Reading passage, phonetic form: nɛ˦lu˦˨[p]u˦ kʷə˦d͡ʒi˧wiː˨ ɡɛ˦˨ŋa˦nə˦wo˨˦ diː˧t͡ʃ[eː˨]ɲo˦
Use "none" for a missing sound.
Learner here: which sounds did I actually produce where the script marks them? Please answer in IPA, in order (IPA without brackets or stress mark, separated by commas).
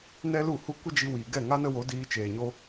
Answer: h, eː˨